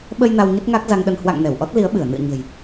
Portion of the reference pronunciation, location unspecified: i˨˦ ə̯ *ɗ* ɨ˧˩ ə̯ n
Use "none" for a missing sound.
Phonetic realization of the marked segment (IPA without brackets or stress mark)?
ɓ